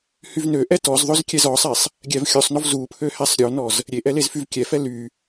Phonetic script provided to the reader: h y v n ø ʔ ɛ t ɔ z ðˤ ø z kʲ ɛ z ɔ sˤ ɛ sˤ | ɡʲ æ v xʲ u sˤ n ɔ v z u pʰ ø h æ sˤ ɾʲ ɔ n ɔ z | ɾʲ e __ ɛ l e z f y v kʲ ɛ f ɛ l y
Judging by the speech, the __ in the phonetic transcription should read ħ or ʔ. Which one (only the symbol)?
ʔ